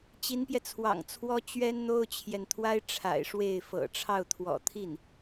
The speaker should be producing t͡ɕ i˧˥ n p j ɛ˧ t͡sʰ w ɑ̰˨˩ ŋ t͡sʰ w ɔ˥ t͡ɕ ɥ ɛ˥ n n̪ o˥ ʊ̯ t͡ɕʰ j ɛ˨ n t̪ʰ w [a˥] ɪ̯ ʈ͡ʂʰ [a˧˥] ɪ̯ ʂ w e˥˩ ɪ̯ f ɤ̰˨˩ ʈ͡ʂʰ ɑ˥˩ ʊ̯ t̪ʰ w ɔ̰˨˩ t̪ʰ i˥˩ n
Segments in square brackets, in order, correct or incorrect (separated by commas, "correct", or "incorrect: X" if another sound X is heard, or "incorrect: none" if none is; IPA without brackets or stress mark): correct, incorrect: a̰˨˩